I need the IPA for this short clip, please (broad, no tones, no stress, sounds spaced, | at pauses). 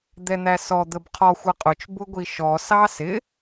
d̪ ɛ n̪ æ s ɔ d̪ ə b qʰ ɔ xʷ ʌ qʼ ʊ t͡ʃ b ʊ ɡʷ i ʃ ɔ s ɑ s ɪ